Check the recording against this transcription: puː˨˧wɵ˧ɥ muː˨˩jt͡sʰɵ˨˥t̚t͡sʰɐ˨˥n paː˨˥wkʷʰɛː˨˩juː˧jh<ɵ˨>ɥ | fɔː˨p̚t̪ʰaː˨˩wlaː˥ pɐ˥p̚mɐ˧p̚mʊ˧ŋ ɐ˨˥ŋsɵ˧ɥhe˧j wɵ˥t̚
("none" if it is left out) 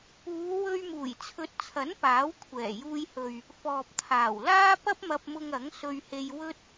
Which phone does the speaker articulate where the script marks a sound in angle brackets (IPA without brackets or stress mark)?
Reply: ɵ˨